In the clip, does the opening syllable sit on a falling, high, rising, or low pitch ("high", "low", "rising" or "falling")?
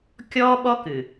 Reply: high